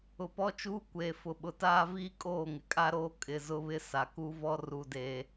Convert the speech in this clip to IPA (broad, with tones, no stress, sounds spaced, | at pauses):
ʊ˨ p ɔ˦ t͡ʃ uː˦ kʷ eː˨ f ʊ˨ ɓ ʊ˨ t aː˦ v iː˦ kʼ oː˦˨ ŋ ɪ˨ kʼ a˦ ɾ oː˦ kʼ ɪ˨ z ʊ˦ β ɪ˦ s a˨ k u˦ v ɔ˦ r u˨ d eː˨